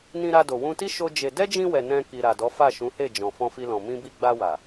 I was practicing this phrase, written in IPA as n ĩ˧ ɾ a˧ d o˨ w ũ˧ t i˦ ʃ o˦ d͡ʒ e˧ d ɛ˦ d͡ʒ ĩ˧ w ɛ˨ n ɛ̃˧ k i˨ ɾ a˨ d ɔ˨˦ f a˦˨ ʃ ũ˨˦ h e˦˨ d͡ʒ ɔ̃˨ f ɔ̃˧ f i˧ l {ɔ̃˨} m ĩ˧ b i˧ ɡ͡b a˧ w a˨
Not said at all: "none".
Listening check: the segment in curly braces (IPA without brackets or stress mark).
ɔ̃˨